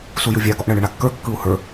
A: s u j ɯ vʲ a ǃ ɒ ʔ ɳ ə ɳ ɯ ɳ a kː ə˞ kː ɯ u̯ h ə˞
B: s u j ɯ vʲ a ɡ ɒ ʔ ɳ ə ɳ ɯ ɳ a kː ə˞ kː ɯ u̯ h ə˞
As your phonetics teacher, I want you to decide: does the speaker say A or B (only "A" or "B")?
B